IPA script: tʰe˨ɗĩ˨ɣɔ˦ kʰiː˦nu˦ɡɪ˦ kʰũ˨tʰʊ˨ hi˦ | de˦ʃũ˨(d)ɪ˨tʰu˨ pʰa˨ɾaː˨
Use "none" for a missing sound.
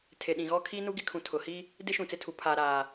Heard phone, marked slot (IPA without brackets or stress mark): t͡s